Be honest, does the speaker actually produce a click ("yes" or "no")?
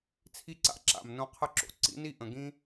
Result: yes